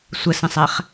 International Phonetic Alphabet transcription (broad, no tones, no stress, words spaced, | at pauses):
sʷəsə̃sˤæχ